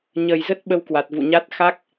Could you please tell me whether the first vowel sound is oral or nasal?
oral